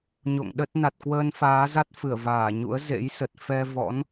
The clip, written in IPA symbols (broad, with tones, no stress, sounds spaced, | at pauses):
ɲ o̰˧˨ ŋ ɗ ə˦˥ t̚ n a˨˩ t̚ k w əː˧ n f aː˨˦ z a˦˥ t̚ f ɨ˧˩ ə̯ v aː˧˩ ɲ ṵ˧˥ ə̯ z ḛ˧˥ j s ə˨˩ t̚ f ɛ˧ v ɔ̰˧˥ n